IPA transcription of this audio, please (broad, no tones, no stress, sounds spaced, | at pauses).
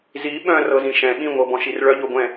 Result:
z i ɓ œ̃ r ɤ z ĩ ʃ ɛ̃ ɓ ĩ ŋʷ ɤ b ɔ̃ ʃ i r ɭ œ ʎ o ɡʷ ɛ̃